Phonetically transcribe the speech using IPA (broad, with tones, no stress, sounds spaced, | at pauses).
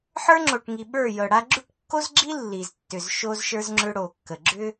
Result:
ħ ə˞˦ ŋ͡ǁ o˨ ʈ ŋ i˨ ɓ ə˞˦˨ j ɤ˨ ɽ a˦ ɡ͡ǁ ʉ˦ ʈ kː o˦ z ɡ͡ǁ i˦ lː i˨ z tː ʏ˨ z ʃ o˦ z ʃ ə˞˦ z ŋ͡ǁ ʏ˦ ɽ o˨ kː ə˨ ɡ͡ǁ ʏ˦